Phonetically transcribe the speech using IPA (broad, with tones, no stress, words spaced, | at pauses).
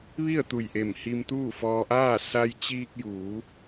ʋi˥˨ə̯t̪u˧˩jʔe˧˩m hi˧mt̪uː˥˨fɔː˧ʔaː˥˨ sa˧jt͡ɕiː˧k̚ juː˩˧